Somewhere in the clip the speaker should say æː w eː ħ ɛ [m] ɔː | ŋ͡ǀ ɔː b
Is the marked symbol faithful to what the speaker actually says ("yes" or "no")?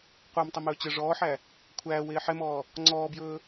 yes